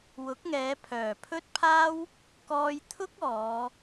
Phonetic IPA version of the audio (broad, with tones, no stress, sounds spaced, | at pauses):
w ʊ˨˥ k̚ ŋ ɛː˨˧ pʰ œː˨˩ pʰ ɵ˥ t̚ pʰ aː˥ w | k ɔː˧ j t̪ʰ ʊ˥ k̚ ɔː˨˧